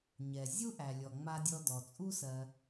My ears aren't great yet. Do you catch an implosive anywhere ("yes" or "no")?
no